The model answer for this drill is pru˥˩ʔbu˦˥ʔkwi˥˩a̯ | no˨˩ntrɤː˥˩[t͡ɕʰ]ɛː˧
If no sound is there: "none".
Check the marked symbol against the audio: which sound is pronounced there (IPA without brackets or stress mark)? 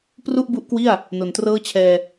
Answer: t͡ɕʰ